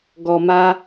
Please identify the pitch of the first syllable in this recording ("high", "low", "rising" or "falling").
low